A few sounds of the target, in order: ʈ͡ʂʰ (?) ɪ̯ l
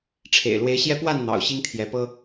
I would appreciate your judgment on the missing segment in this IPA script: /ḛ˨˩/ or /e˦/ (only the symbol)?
ḛ˨˩